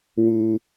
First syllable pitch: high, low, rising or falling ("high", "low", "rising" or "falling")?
high